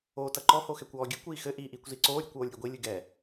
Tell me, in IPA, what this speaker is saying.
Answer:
oːtɐǃɔ hoxɛkʷɔːɡʲɨ kʷiːxɘ ʔiːʔiːkʷziǀoː ɾʲukʷoːlʲɾʲeɡʷi lʲɨɡɛ

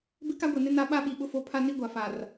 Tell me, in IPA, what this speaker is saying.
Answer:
bɪ˦ka˦ɡʷe˨nɪ˦ na˦ ɓa˦ɓi˨ ɓʊ˦fo˦˨ pʰa˦ni˦ɡʷa˨ fa˨r

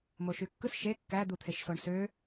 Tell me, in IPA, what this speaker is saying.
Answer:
moʃykːɯs ʃe kːæ d̪ut̪ʰeʃsoɳsø

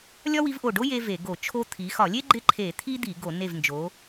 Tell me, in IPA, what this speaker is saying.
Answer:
lʲɒ˥wi˧˥vʔo˧˩ɖo˥ je˥ve˧˩˧ɡo˧˩˧t͡ʃʰo˥ t̪ʰi˩˧xɒ˧˩˧lʲe˥ ɡ͡ǃɪ˥ǃʰe˧˩˧t̪ʰi˥ d̪i˧˩˧ɡo˧˩˧ ne˧˩vnd͡ʒo˩˧

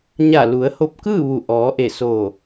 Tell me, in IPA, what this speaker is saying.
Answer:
ɲa˧˩lu˩˧ə̯ ho˧p̚kɯː˥˨ ʋu˧˩ ʔɔː˩˧ʔe˧˩ soː˧˩

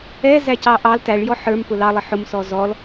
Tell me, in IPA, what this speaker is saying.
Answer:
ɛzæcɑ ʔɑl tæɭjɔ ħə˞mpʊ lɑlˠə ħʊmsɔ zɔl

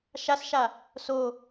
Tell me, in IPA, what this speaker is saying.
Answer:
ʃasʃa | so

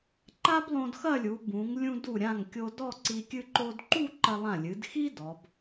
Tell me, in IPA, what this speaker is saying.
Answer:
ǃa˥blˠõ˧dxɐ˥˧ lʲu˩˧ bũ˩˧ŋ lʲũ˧du˧˩ɾʲã˧˩ŋ kʲo˧dɔ˥˧ǀi˧ kʲɨ˧ǃo˧dǃu˥˧ ǃɐ˧lˠã˧˩lʲɨ˩˧dxi˥ dɔ˩˧b

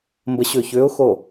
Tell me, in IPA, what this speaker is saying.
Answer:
mbəɕʏː çʏːʊ̯xo

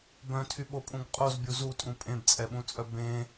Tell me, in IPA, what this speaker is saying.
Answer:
bœ̃tʰyɓopʼũɡ qʼozbʲu zutʼũ pʼẽbt͡sʼɛɓũt͡sʼœ bẽ

